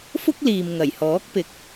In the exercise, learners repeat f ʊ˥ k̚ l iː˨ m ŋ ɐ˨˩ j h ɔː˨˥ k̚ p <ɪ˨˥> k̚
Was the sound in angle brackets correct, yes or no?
no